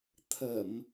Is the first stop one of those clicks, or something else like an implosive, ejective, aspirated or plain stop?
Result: aspirated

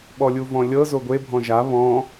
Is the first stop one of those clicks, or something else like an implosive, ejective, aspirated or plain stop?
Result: implosive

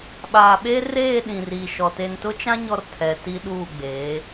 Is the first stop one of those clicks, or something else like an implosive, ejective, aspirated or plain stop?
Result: implosive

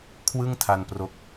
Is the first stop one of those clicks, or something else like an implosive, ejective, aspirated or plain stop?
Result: aspirated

